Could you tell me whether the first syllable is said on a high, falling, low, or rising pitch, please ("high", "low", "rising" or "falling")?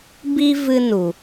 high